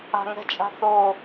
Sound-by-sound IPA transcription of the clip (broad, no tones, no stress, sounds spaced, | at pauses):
a̤ ŋ ɛ̤ t͡ʃʼ a̤ θ o